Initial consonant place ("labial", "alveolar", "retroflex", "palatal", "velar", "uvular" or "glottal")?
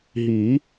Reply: glottal